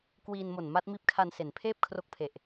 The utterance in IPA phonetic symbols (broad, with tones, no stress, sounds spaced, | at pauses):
k w iː˧ n m o˨˩ n m a˦˥ t̚ m iː˦˥ p̚ kʰ a˧ n s e˩˦ n pʰ eː˥˩ p̚ kʰ r o˦˥ k̚ pʰ e˨˩ ʔ